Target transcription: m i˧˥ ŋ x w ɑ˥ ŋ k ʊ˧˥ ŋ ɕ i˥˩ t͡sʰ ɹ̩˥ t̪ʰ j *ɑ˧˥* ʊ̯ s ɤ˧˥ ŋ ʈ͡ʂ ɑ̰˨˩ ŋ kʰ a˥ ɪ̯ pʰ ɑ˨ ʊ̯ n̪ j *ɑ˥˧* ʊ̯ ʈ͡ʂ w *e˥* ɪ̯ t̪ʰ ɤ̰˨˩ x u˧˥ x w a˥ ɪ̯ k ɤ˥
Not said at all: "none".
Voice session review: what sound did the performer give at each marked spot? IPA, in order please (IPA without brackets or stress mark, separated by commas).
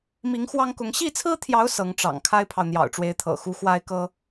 ɑ˧˥, ɑ̰˨˩, e˧˥